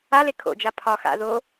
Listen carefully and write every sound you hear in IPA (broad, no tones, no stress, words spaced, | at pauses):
ale kʰo̰d͡ʒa pʰɒ xa̰ ðo